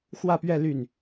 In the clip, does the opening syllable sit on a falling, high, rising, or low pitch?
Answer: falling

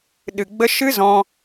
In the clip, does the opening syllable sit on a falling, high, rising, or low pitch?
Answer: low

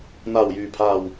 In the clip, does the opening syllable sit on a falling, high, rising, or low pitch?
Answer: low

